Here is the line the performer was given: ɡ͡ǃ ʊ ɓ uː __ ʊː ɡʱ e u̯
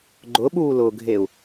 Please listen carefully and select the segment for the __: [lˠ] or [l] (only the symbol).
l